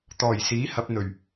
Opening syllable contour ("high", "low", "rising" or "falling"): low